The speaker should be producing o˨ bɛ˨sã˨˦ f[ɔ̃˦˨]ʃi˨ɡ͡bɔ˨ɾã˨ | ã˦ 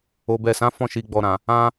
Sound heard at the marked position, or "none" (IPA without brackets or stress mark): ɔ̃˦˨